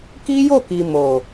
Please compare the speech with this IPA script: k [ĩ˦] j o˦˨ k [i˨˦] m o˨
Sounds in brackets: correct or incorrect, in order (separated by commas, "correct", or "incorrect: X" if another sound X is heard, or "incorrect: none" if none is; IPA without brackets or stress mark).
incorrect: i˦, incorrect: i˨